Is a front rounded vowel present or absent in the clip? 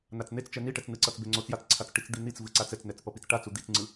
absent